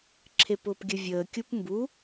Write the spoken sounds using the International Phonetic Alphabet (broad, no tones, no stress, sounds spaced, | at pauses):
ǁʰ e p ʊː p ɡʲ ə vʲ əː kʲ u p m b u